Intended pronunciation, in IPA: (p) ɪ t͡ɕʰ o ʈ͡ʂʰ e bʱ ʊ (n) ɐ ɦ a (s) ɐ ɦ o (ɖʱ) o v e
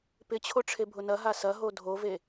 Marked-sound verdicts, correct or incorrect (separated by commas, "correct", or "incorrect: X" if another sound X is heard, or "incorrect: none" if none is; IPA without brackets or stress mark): correct, correct, correct, incorrect: dʱ